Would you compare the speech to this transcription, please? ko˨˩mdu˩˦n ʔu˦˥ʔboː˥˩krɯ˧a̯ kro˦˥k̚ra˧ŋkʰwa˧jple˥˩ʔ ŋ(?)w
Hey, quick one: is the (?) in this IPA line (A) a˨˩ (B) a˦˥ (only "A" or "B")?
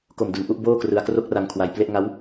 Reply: B